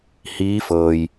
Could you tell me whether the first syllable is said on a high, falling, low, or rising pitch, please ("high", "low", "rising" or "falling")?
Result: rising